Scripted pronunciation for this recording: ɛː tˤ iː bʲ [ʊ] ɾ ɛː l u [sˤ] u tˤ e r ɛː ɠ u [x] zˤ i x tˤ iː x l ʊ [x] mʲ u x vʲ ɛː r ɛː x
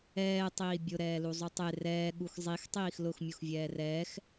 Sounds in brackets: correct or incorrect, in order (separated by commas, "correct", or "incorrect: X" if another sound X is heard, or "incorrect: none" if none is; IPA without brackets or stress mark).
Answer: correct, incorrect: zˤ, correct, correct